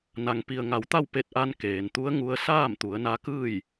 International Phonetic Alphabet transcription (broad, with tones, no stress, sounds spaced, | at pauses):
n a˩ ŋ p i˩ ə̯ ŋ a˩˧ w t̪ a˥˨ w p e˧ t̚ ʔ a˧ n k eː˩ n t̪ u˧˥ ə̯ ŋ u˧ ə̯ s aː˥˨ m t̪ u˩˧ ə̯ n a˧˥ k ɯː˥˨ j